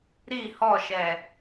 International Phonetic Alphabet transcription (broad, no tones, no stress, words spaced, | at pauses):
ɾi hɔʃɛ